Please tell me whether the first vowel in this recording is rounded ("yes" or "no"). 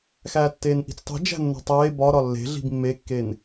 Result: no